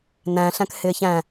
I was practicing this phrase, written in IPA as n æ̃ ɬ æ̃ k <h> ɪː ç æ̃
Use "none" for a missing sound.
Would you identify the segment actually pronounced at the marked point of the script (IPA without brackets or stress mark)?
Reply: h